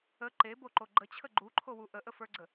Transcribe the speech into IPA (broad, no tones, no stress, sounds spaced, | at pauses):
ə ǃ e b o ǃ o ɡ͡ǃ ə t͡ɕʰ ə ɡ͡ǃ u ǃʰ o w u ʔ ə ʔ ə f ə˞ ɡ͡ǀ ə